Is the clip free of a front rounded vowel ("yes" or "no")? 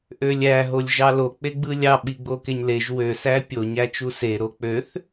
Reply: no